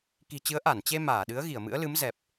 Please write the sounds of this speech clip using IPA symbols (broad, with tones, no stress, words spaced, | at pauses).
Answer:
ki̤˨˩t͡ɕɨ˨˦ə̯ ʔa˧˩nt͡ɕe˧ maː˧˩ɗɨ˨˦ə̯ ɣi˧˩ə̯mɨ̰˧˥ə̯lɨ˨˦m zɛ˨˩p̚